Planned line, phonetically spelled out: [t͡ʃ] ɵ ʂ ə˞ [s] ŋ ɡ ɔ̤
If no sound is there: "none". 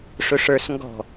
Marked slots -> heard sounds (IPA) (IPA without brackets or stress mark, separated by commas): ʂ, s